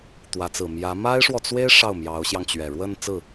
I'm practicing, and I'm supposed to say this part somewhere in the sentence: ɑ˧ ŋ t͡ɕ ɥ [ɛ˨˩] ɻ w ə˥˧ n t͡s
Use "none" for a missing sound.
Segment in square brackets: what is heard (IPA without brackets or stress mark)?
ɛ˨˩